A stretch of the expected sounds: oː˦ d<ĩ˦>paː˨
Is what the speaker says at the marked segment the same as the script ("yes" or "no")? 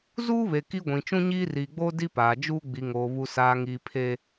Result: no